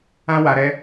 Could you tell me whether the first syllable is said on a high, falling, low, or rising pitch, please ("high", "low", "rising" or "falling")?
high